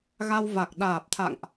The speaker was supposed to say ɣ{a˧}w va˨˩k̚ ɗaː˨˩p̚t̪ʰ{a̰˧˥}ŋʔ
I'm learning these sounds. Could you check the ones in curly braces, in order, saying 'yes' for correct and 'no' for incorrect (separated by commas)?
yes, no